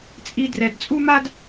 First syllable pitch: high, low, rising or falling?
high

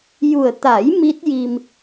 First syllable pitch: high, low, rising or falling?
low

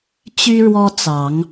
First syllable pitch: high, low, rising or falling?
high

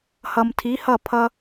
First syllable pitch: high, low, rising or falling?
low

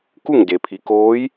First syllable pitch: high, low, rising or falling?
falling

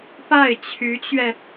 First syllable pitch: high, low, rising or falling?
falling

